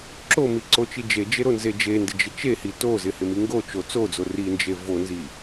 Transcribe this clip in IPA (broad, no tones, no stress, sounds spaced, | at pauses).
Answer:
ǁ o m i ǀ o t͡ʃ i d͡ʒ e d͡ʒ e ɾ o n z e d͡ʒ e n d ɪ d͡ʒ ɪ t͡ʃ e h i t o z ɪ h ɪ m i ŋ ɡ o t͡ʃ o t͡s o d͡z o r i n d͡ʒ e v o n z i